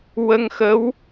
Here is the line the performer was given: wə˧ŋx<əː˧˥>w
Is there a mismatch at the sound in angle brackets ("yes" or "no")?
yes